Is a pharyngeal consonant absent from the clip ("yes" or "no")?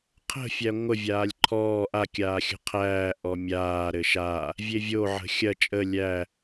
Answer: no